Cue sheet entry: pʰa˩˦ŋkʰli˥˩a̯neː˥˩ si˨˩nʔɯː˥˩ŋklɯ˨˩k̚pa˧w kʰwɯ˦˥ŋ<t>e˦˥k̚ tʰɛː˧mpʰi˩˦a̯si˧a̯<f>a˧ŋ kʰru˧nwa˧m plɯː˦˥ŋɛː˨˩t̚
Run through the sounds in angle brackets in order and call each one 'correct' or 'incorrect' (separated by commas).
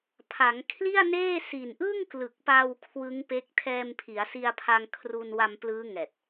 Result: incorrect, incorrect